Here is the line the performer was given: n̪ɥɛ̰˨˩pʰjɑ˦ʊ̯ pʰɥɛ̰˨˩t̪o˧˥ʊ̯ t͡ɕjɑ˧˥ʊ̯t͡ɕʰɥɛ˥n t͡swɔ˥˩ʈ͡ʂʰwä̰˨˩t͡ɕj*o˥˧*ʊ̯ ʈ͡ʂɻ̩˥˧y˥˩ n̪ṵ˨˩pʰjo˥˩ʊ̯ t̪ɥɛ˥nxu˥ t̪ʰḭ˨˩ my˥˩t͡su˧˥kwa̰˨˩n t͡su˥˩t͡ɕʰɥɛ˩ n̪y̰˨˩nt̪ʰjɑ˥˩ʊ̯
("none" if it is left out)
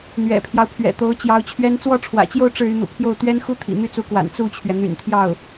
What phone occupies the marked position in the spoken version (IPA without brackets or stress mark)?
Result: o˥˧